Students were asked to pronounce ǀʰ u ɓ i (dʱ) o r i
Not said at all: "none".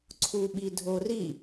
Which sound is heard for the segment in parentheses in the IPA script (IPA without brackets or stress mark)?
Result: dʱ